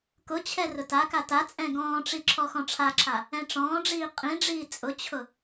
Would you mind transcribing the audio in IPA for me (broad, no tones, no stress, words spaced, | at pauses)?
kʊt͡ɕʰɛ rʊtaka tat͡sʼɛ̃ ɡɔ̃ːʈ͡ʂi ǁʰɔxɔ̃ʈ͡ʂʰaǁʰa | ɛ̃ʈ͡ʂɔ̃ːɖ͡ʐiː qʼĩɖ͡ʐiː t͡sʼʊt͡ɕʰʊ